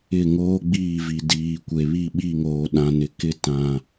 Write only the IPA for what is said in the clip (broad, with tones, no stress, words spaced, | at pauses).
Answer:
ɪ˦˨ŋoː˦ ɡ͡biː˦˨vi˨diː˨kʷe˨ βi˦˨ɓi˦˨ŋoː˨ɗã˨ nɪ˨kɪ˦tã˨